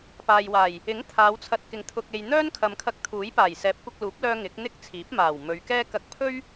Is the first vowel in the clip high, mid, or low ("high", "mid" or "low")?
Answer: low